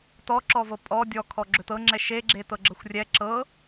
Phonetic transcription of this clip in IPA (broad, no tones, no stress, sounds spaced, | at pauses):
t ɔ ǁ ɔ v ɤ pʼ ɔ dʲ ɔ kʰ ɔ ɡ͡ǁ ɵ t ɤ ŋ͡ǁ ɛ ʃ e ɡ͡ǁ e t ɤ ɡ͡ǁ ɤ xʷ rʲ ɛ ǁ ɤ